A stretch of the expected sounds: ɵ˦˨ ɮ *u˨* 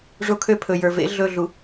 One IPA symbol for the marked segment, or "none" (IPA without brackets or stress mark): u˨